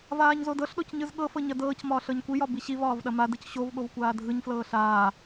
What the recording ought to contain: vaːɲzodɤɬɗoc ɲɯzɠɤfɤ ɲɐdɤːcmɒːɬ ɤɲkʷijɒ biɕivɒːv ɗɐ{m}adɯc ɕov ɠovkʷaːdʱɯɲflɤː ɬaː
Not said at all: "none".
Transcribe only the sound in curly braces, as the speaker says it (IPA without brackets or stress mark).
m